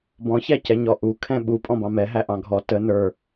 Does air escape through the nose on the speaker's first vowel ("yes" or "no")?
yes